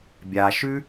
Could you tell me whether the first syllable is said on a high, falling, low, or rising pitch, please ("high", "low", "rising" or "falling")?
low